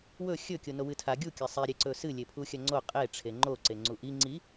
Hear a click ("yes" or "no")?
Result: yes